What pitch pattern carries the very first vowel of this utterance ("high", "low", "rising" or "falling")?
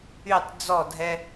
falling